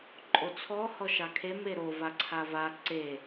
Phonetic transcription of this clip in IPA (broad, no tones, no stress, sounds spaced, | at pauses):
ǃʼ o t͡sʰ ɔ h ɔ ʃ ɑ kʰ e m e ɾ o v a ǀʰ a v a ǀ e